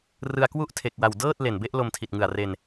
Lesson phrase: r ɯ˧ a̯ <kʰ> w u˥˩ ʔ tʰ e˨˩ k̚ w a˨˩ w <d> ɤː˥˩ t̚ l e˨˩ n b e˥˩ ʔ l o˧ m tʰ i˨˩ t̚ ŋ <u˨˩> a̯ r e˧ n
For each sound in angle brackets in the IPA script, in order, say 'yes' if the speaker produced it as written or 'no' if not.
no, yes, no

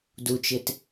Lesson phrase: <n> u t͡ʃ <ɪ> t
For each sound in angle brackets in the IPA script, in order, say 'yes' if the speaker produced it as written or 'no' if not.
no, yes

